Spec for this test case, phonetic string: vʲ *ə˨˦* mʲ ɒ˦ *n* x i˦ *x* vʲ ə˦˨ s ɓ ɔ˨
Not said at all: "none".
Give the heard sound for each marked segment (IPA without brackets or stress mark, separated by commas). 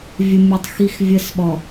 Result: ə˦, tˤ, x